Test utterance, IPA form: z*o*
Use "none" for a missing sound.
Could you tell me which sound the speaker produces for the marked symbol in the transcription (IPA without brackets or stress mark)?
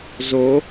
o